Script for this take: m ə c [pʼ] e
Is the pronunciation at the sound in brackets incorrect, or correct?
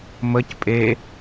correct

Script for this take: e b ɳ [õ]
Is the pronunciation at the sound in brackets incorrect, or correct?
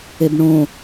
correct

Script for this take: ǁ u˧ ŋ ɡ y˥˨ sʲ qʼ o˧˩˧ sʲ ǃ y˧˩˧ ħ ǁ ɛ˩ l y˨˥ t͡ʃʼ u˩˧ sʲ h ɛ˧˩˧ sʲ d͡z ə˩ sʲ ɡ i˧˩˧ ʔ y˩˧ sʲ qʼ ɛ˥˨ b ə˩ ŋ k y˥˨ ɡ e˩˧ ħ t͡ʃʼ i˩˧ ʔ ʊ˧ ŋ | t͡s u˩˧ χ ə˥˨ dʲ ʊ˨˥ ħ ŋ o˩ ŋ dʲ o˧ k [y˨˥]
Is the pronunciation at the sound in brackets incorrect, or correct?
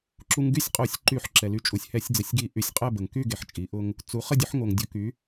correct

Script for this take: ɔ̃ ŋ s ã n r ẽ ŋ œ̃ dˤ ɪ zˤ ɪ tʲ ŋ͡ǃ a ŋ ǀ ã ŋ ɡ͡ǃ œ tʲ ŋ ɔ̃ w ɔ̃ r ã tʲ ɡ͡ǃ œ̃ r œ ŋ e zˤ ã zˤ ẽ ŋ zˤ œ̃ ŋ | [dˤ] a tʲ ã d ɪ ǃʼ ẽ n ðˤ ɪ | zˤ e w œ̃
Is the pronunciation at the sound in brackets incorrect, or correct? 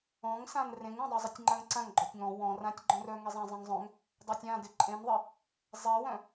correct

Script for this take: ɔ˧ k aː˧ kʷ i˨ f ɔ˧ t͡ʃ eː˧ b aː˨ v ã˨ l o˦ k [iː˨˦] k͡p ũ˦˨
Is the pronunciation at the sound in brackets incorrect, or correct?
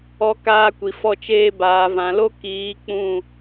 correct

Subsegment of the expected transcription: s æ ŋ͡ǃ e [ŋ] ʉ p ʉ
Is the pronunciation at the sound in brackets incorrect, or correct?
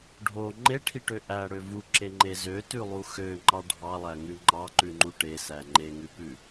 correct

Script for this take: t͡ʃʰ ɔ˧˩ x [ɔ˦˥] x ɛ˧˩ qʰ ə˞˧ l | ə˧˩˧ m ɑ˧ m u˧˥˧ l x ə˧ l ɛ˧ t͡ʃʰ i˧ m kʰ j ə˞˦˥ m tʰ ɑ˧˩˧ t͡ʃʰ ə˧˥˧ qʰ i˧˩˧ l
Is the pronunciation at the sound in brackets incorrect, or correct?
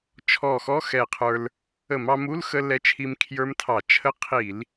incorrect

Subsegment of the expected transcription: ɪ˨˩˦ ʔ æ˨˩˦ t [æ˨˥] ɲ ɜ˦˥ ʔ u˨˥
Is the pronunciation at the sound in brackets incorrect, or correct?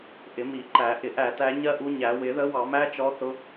correct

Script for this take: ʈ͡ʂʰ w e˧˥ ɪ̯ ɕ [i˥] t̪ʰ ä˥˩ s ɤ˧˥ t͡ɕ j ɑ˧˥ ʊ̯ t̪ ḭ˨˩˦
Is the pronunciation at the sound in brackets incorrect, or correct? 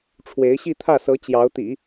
incorrect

